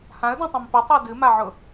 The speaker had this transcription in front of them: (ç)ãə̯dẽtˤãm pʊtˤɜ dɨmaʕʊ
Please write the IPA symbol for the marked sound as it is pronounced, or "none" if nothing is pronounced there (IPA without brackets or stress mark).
h